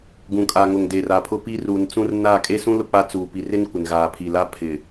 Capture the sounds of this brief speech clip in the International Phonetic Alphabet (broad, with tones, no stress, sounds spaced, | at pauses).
ɡ ũ˨ kʼ a˨ ŋ ʊ˨ ŋ d eː˨ r a˨ pʰ ʊ˦ p i˦ r uː˨ n t͡s ũ˦ r n a˦˨ kʼ e˦ s ũ˦ l ʊ˦ k͡p a˦ t͡s uː˨ p i˨ r ɪ˦ n kʷ ɪ˨ n ɣ aː˨ pʰ i˨ l a˦ pʰ ɪ˨